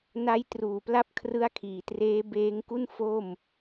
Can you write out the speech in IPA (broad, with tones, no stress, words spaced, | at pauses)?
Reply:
na˦˥jtruː˨˩pla˦˥p̚kʰrɯ˦˥a̯ kʰiː˨˩treː˦˥beː˦˥ŋku˥˩n fo˥˩m